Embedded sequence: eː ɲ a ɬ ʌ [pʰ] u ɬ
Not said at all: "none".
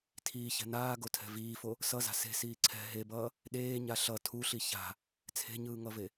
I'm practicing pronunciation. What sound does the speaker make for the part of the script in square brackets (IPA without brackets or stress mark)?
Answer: tʰ